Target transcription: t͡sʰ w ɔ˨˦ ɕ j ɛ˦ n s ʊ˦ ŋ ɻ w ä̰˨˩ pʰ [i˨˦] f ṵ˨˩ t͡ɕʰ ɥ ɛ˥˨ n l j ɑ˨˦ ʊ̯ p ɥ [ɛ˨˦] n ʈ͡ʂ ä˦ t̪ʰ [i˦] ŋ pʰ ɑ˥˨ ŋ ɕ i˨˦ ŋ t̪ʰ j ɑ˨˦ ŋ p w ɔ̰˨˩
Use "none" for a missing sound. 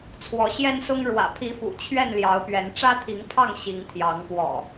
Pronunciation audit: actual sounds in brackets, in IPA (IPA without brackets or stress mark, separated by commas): i˨˦, ɛ˨˦, i˨˦